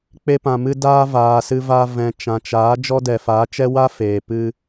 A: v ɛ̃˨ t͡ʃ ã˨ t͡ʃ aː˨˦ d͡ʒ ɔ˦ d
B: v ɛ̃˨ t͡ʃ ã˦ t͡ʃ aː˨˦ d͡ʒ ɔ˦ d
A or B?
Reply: A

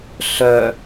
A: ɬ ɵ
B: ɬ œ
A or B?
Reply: B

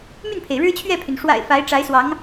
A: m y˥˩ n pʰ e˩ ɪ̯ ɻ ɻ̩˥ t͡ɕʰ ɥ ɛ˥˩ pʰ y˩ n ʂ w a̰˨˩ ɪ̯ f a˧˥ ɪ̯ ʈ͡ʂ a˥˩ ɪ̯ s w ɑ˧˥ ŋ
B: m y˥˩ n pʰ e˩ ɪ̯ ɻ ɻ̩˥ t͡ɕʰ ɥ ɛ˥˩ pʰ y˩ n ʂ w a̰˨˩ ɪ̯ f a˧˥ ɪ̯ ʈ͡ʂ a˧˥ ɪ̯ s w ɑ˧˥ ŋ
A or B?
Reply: B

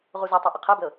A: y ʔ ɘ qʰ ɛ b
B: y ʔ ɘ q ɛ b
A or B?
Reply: A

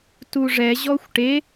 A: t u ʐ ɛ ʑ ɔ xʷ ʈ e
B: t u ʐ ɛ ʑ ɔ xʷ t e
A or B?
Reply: A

